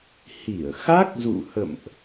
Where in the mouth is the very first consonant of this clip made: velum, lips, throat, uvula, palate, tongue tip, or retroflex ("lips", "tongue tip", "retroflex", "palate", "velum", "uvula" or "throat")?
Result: throat